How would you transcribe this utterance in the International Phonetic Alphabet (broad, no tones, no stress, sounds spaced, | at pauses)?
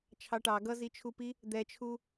t͡ʃʰ ɑ ʈ ɑ ɡ ʌ z i t͡ʃʰ u p i | d̪ ɛ t͡ʃʰ u